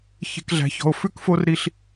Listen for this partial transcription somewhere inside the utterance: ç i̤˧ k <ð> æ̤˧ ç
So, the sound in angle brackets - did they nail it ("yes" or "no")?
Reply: no